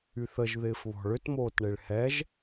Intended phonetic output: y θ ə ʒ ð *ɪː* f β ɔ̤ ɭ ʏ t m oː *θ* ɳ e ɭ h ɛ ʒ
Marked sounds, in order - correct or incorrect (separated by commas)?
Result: correct, incorrect